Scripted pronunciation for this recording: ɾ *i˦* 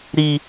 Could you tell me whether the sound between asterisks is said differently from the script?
no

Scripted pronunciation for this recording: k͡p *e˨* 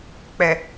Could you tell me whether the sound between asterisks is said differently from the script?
yes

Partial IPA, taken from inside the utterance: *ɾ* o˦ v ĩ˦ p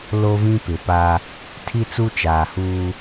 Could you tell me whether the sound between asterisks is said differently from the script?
yes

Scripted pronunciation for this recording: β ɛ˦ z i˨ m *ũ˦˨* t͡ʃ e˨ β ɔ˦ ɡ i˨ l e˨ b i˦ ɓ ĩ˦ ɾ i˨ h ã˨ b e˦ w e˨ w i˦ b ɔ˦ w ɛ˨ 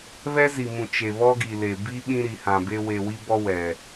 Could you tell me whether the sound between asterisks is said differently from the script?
yes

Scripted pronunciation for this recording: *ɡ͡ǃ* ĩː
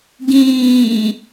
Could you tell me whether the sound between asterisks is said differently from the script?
yes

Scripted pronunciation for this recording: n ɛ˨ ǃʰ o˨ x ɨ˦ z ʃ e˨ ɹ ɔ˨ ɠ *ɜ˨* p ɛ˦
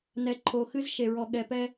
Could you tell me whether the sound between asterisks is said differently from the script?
yes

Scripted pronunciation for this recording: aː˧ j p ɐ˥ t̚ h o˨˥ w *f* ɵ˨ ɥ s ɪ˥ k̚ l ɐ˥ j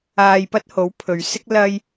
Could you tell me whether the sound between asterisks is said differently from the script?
yes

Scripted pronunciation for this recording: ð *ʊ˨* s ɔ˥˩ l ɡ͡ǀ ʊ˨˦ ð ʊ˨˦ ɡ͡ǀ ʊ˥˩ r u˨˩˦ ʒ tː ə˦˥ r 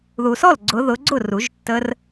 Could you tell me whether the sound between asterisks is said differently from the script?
yes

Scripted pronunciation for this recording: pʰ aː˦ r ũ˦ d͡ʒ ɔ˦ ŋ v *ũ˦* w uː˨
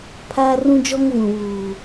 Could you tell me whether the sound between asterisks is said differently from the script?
yes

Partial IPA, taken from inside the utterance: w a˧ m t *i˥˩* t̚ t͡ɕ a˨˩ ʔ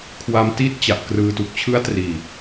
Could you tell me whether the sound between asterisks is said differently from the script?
yes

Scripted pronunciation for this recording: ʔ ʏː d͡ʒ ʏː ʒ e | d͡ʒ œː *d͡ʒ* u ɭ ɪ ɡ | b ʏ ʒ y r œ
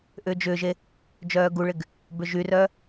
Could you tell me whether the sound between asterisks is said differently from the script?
yes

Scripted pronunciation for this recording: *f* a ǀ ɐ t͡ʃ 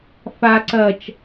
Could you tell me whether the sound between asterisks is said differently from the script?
no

